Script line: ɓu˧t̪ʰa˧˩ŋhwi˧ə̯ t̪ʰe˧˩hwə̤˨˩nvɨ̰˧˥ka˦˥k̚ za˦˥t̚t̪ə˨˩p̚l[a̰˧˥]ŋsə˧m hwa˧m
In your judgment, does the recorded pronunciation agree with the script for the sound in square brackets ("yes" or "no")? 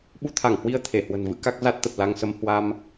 no